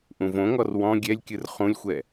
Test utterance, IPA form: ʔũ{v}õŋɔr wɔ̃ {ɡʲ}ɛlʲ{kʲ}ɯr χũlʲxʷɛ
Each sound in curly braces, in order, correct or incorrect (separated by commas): correct, correct, correct